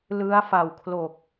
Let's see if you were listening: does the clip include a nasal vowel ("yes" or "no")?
no